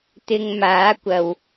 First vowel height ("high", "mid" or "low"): high